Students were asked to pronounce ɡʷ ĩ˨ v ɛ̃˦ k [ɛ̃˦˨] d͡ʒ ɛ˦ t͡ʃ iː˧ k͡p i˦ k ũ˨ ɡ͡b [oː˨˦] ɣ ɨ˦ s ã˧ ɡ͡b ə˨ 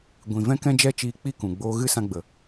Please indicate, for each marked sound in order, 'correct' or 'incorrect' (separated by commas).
incorrect, incorrect